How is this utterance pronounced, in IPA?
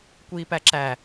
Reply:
kʷ iː p æ ǁ æ

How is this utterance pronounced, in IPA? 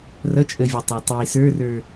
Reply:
r ʌ t͡ʃʼ ə vʲ ʌ tˤ ɑ tˤ i s ə˞ r ə˞

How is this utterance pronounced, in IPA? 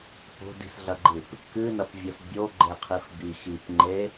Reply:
p o̤ d i̤ s ɮ ɐ ɡ͡ǃ ɨ p | k ɨ n ɐ p vʲ o s bʲ o ɡ͡ǃ e qʰ i f b i x i p ŋ͡ǃ e

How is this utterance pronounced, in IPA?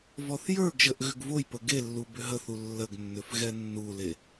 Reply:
v ɔ θ j ə˞ ɡ ʒ ə ʔ ɣ ʏ ɡ v o j p ə ɡ e lː u b ʏ ɦ ə θ u lː ə ɡ nː ʏ f ɣ ɛ nː u l e

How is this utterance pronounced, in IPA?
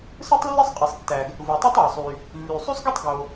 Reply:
s ɯ˥ tˤ lː e˥ sˤ qʼ i˩ sˤ tː æ˩ ɡ | v u˩ tˤ ɯ˥ tˤ ɑ˩ sˤ y˩ | lː y˩ sˤ y˥ sˤ ɡ i˥ tˤ ɡ o˩

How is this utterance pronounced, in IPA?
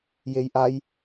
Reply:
j e j ʔ a j

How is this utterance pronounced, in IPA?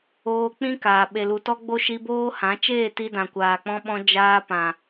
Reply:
oː˧ k͡p ĩ˦ k aː˨ ɓ e˨ l u˨ t ɔ˦ ɡ͡b o˦ ʃ i˧ b oː˦ h ã˨˦ t͡ʃ eː˦˨ t i˧ d ã˨ kʷ aː˨ k͡p ɔ̃˧ ɓ ɔ̃˧ d͡ʒ aː˧ p ã˨

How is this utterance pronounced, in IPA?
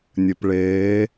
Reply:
nʲ ɘ p ɭ eː

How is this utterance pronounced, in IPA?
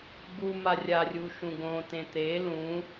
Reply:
ɡ u m a rʲ a rʲ u ʃ ũ ɡ õ t ẽ t̪ e l ũ

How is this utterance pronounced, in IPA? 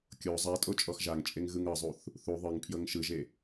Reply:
kʲ o zˤ a tʼ o t͡ʃʼ ɔ x ʒ a ŋ t͡ʃʼ e ŋ ɣ ɯ ŋ ɤ zˤ u θ | θ u ðˤ ɯ ŋ pʰ j ɤ ŋ ʃ ɯ ʒ e

